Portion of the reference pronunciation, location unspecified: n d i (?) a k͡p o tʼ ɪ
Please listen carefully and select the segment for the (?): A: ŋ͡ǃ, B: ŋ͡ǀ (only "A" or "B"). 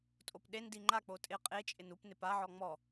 A